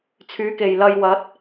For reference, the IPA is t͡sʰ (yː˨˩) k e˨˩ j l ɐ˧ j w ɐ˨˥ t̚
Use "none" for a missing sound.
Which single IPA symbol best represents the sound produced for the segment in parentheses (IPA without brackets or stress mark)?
yː˨˥